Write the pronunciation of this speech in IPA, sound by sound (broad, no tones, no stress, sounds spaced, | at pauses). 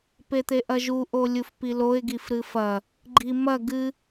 p e t̪ e ʔ ɐ ʒ u ʔ o lʲ u f p i l o ɪ̯ ɡ i f ɾ ɨ f ɐ | ɡ͡ǃ i m ɐ ɡ ɨ